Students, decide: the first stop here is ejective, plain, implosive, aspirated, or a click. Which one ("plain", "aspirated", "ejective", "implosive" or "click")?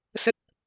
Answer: plain